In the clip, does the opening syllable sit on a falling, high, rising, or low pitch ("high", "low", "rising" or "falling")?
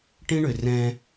high